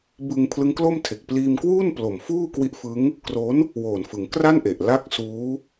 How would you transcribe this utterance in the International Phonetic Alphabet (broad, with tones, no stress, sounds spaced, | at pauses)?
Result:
b ɯ˧ ŋ pʰ l ɯ˦˥ ŋ k l o˥˩ m tʰ e˨˩ k̚ p l iː˧ m k w uː˥˩ n p l o˨˩ m f uː˥˩ k w i˦˥ ʔ f ɯ˦˥ ŋ | k r o˦˥ n | w oː˨˩ n f ɯ˩˦ ŋ k r a˥˩ n ʔ e˨˩ ʔ l a˥˩ k̚ s uː˦˥